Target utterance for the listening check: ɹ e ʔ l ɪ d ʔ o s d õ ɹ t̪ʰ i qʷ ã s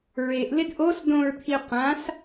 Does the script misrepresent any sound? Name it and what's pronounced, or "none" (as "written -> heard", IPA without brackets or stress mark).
none